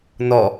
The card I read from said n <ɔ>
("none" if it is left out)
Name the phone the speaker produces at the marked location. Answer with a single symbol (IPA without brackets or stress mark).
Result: ɔ